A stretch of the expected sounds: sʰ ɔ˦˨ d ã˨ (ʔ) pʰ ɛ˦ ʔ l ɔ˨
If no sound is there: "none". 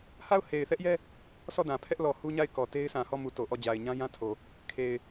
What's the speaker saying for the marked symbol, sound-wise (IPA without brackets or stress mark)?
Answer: none